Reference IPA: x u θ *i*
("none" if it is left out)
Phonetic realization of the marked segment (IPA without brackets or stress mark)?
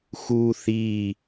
i